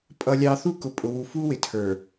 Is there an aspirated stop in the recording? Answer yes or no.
yes